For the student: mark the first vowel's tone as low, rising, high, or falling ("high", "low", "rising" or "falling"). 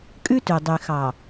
high